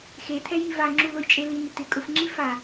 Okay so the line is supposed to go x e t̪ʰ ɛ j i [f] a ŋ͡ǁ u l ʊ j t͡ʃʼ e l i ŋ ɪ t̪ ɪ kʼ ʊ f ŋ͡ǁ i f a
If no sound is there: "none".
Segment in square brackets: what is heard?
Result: v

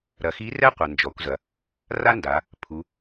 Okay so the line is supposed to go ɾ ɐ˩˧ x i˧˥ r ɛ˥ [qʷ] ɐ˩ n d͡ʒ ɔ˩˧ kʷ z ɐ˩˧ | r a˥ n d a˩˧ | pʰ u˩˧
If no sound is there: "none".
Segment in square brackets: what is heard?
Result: qʷ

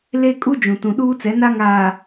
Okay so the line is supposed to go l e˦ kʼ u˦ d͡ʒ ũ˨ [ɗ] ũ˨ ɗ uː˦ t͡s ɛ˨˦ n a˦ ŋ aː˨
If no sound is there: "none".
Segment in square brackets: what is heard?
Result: t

